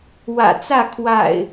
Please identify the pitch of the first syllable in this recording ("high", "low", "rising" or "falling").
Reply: low